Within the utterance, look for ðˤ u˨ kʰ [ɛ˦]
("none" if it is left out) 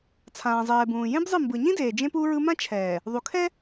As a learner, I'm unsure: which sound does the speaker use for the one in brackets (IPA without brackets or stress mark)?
ɛ˦